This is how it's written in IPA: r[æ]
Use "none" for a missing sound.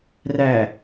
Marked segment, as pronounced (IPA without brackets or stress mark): æ